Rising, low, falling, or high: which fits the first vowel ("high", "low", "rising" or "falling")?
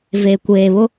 low